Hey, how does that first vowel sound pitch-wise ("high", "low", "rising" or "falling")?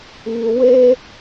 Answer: high